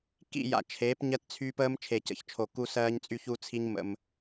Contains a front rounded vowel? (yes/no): yes